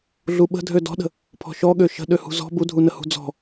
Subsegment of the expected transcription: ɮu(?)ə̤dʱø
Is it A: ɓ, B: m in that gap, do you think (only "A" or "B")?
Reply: A